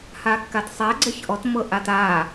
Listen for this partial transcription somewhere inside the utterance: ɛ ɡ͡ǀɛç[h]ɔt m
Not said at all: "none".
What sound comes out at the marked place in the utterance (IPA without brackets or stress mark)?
ʔ